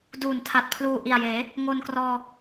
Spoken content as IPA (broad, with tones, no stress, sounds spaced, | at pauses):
d uː˨˩ n tʰ a˨˩ t̚ pʰ l uː˨˩ ʔ i˨˩ a̯ j eː˩˦ | ŋ o˧ n k r ɔː˧